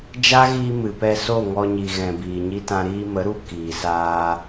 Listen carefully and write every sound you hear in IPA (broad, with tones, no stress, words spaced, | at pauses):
d͡ʒa˦ɣiː˧ mɨ˨ pɛ˧so˦˨ ŋɔ˧ɲi˨ ɣɛ̃˨biː˨ɲi˧tã˧ ɾiː˧mə˨˦ɾu˧ kiː˨saː˧